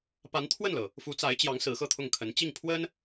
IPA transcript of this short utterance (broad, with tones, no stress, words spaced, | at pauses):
pa˧˥nt̪ʰwə˥˩nlɤ˩ | fu˧˥t͡sa˧˥ɪ̯t͡ɕjɑ˧˥ŋ sɹ̩˧˥xɤ˥˧t̪ʰʊ˥˩ŋkʰə˧˥n t͡ɕi˥˩ŋpʰwə˥n